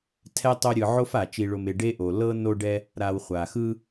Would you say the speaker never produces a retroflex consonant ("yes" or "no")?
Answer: no